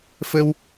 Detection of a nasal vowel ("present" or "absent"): absent